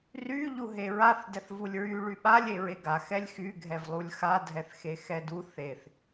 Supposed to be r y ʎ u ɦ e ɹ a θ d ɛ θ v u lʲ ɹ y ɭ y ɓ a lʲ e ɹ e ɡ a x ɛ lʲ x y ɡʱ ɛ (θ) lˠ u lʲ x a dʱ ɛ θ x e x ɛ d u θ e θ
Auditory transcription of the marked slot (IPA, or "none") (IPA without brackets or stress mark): v